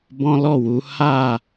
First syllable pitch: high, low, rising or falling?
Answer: high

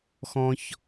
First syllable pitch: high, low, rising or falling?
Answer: low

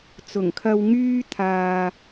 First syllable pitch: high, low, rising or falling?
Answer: low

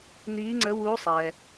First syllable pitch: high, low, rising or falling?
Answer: rising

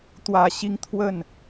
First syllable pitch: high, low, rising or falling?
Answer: low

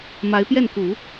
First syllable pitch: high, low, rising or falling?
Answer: rising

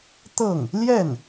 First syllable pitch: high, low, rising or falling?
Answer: falling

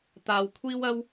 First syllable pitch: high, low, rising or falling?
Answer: low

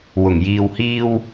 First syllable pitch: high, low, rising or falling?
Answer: low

